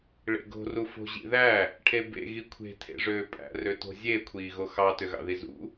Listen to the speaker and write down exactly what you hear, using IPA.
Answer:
ɭ ḛ ɡ o̤ r u f o̤ ʑ ḭ ð æ | ʈʰ e b ḛ ɣ i kʷʰ e̤ tʰ ḛ ʐ øː pʼ æ̰ r ø t o̤ zʲ e kʷʰ iː ɣ o x ɑ t ø ɣ ɑ̰ ð i z ṵ

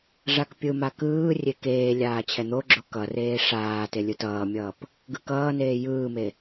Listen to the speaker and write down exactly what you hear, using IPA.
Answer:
ʐ a k pʲ ɯ m a k ɯː rʲ e k eː lʲ aː t͡ɕʰ ɛ n̪ o ɡ͡ǁ o k ʌ r eː ʂ aː t e lʲ ɯ t ʌː mʲ ʌː p | ɡ ɯ k ʌː n eː j ɯː m e

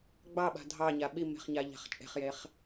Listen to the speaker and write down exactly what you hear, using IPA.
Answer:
ɡ͡b ɑ ɓ a̤ dʱ ɑ ɲ a ɓ i m e̤ χ ɲ a ʎ a̤ χ t͡ʃʼ e̤ χ j e χ

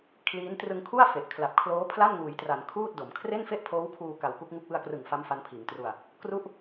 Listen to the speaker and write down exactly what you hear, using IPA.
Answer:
kʰ l iː˦˥ n t r ɯ˧ ŋ kʰ u˥˩ a̯ f e˨˩ ʔ kʰ l a˨˩ p̚ kʰ l oː˦˥ pʰ l a˥˩ n ŋ uː˩˦ j t r a˩˦ n kʰ uː˥˩ t̚ d o˩˦ m kʰ r e˥˩ n f e˥˩ ʔ pʰ oː˦˥ w kʰ uː˧ k a˧ w k u˦˥ k̚ ŋ u˥˩ k̚ w ɯ˧ a̯ k r ɯ˨˩ ŋ f a˦˥ m f a˦˥ n pʰ iː˩˦ ŋ t r u˧ a̯ | k r u˥˩ ʔ

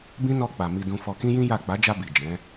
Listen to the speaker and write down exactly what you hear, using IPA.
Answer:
b ĩ˦ n ɔ˧ k͡p a˨ m i˧ d ũ˧ f ɔ˧ k ĩ˦ j ĩ˦ j a˦˨ k͡p a˨˦ d͡ʒ a˧ b i˨ d͡ʒ ɛ̃˨˦

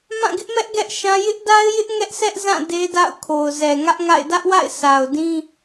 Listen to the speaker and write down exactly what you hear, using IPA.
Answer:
m ã˦˨ ɡ ɪ˦ ʔ m ɛ˦ ʔ ɡ ɛ˦ ʔ ʃ ã˦ j ɪ˦ ʔ d a˦ ɪ̯ j ɪ˦ ʔ ŋ ɛ˦ ʔ sʰ ɛ˦ ʔ z ã˦˨ d e˦ d a̰˦˨ ʊ̯ kʰ o˨ ʊ̯ z ɛ˨ ŋ ä˦ ʔ ŋ a̰˦˨ ɪ̯ d ä˦ ʔ w a̰˦˨ ɪ̯ sʰ a˨ ʊ̯ d ĩ˦

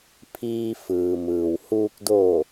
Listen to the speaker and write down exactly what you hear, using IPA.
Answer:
pʰ iː˧ f ɯː˩ m ɯː˩ w h uː˧ k̚ d oː˧˩

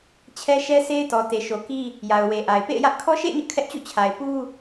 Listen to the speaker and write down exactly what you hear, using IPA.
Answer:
t͡ɕʰ ɛ˦ ʃ ɛ˦ s e˦ ɪ̯ t ɔ˨ t e˨ ʃ o˨ k i˦ | j a˨ ʊ̯ w e˨ ʔ a˨ ɪ̯ p ḛ˦˨ ɪ̯ j ä˦ ʔ kʰ ɔ˦ ʃ ḛ˦˨ ɪ̯ ɲ ʊ˦ ʔ kʰ ɛ˦ ʔ t͡ɕ ṵ˦˨ t͡ɕʰ a˨ ɪ̯ p u˦

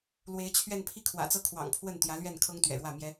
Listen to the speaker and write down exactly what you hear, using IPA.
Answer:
l w e˧˥ ɪ̯ t͡ɕʰ ɥ ɛ˥˧ n pʰ i˥˩ kʰ w ä̰˨˩ t͡s ɤ˥ kʰ w ɑ̰˨˩ ŋ pʰ w ə˥˩ n t̪ j ä˧˥ l ɥ ɛ˥˩ n kʰ ɤ˥ ŋ t̪ ɥ ɛ̰˨˩ ɻ w ä˥˩ m j ɛ˥

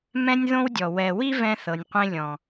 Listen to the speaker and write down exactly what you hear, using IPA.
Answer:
m ɛ̃˦ nʲ ð õ˦ w dʲ ɔ˨ w ɛ˨ w i˦ v ɛ̃˦ θ ɤ˨ nʲ qʷ ẽ˦ lʲ ɔ̃˨

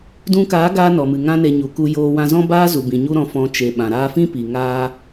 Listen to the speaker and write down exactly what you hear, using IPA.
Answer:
d ũ˧ k aː˨˦ ɡ aː˧ n ɔ˨ m ɨ˨ ŋ ã˦ n e˧ ɲ u˨ k u˧ j oː˧ w ã˧ z ɔ̃˦ b aː˦ z u˨ b ĩ˨ ɲ u˦ ɾ ɔ̃˧ f ɔ̃˧ t͡ʃ e˨ ɓ ã˨ ɾ aː˧ f ĩ˦ p i˨ ŋ aː˦

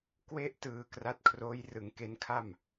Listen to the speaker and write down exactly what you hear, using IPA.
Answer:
k w e˥˩ ʔ t ɯː˨˩ k r a˦˥ t̚ kʰ r oː˦˥ j r ɯ˩˦ ŋ k e˦˥ n kʰ a˥˩ m

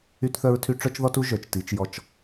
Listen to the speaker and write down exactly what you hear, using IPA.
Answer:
y˦ t θ œ˦ ɹ tʰ y˦ ʈ͡ʂ œ˦ t͡ʃ ð ɔ˦ t u˦ ʒ œ˨ t͡ʃ t i˨˦ t͡ʃ j ɔ˦ t͡ʃ

